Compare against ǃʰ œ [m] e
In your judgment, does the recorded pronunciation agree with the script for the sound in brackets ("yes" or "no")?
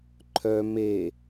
yes